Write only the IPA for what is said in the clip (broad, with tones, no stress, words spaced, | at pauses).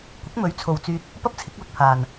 kʷɪ˨˥k̚mɵ˨˥ɥt͡sʰo˨wt͡syː˧t̚ | pɐ˥p̚t͡sʰɪ˨˥k̚lʊ˧k̚pʰaː˨n